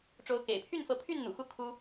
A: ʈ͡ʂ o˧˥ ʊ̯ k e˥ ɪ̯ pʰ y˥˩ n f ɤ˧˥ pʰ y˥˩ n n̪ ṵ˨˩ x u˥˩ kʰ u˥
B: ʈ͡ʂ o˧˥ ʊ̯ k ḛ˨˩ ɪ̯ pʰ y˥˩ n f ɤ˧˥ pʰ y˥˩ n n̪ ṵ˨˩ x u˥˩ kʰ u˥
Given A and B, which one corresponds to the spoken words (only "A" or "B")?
B